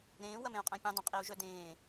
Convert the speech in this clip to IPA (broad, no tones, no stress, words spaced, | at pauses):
ɾẽː wɐmẽu̯qʼæ̃pʲẽ dˤɐ̃qʼiu̯ʒœdẽː